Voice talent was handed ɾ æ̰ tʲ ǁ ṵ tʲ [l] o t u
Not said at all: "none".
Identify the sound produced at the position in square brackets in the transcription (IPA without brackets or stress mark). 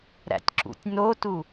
n